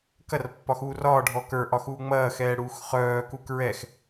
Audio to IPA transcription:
kɐrpːɒ xuːrɒːɖʱɔ kə˞ʔɒ xuːŋ͡mɐːxɛː ɽuːxχœːku kɹɛx

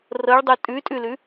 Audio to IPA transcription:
rɤɭdˤu tʼʉtʼʉlʉ

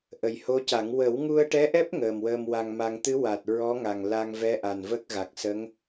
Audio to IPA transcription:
ʔə˨˩jho˧˥ca˨˩˦ŋ wə˨˩˦wŋu˧ə̯ʈɛ˧˥ʔɛ˦˥p̚ ŋəː˨˩mwəː˧mwa˧ŋma˧ŋ t̪ɨ˧˥ wa˨˩t̚ɹɔ˧˥ ŋa˨˩ŋla˧ŋvɛ˧˥ʔa˨˩n və˦˥k̚ɣa˨˩k̚ sə˧˥ŋ

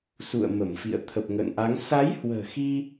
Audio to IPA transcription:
sṵ˧˨ə̯ mə˧˩mfḭ˧˨ə̯ t̪ʰə˨˩p̚ŋə̰ː˧˨nʔa˨˦ŋ sa˨˦jhwə̤ː˨˩xi˧

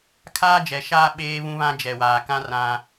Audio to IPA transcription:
kʰaː˦d͡ʒɛ˨ʃaː˦ ɓeː˦βũ˦βã˦ d͡ʒɛ˨waː˨kã˦ rã˦

